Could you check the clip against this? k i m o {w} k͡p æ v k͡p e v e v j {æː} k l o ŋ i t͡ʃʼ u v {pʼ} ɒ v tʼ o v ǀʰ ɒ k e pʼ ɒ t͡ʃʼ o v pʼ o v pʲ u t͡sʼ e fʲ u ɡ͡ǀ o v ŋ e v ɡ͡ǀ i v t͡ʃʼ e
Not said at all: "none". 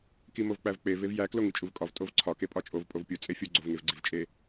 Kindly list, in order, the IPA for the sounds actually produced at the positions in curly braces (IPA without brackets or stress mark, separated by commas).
v, æ, kʼ